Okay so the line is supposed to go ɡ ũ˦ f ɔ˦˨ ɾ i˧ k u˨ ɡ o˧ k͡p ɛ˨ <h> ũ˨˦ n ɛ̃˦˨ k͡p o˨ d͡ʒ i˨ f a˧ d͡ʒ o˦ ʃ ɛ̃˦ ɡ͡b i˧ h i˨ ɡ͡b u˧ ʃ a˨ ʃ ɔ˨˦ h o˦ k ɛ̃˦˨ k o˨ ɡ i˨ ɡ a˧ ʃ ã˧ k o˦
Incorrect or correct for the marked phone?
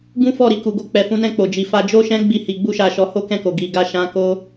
incorrect: f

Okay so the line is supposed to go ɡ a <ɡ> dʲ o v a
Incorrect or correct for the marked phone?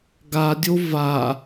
incorrect: none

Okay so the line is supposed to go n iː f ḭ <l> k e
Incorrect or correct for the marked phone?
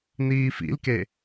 correct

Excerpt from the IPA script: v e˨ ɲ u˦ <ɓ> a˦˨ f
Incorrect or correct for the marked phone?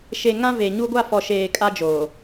incorrect: ɡʷ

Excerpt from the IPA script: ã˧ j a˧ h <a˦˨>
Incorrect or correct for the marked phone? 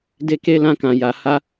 incorrect: a˦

